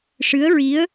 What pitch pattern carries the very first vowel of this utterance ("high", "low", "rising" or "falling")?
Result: rising